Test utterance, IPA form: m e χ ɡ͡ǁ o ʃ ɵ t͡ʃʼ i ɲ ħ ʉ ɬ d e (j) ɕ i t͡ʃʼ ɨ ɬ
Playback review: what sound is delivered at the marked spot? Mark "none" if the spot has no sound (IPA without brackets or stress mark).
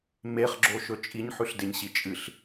ɲ